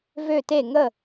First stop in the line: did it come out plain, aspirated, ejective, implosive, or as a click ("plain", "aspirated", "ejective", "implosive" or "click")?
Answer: plain